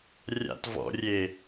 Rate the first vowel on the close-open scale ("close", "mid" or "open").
open